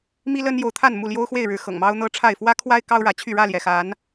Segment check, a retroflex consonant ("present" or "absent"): present